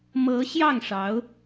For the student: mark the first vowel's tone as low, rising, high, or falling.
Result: rising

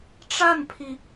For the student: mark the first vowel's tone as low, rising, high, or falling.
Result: falling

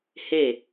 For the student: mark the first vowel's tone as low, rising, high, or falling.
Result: falling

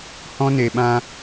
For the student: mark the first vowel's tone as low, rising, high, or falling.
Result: high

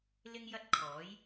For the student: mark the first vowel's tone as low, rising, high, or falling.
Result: high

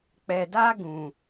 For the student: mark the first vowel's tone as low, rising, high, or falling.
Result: low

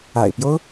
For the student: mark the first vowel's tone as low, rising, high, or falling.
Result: low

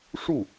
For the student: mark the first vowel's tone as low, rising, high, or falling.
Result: falling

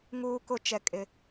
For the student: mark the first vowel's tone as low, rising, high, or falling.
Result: high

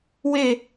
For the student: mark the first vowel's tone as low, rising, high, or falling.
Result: falling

